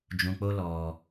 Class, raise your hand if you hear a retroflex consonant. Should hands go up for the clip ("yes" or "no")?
no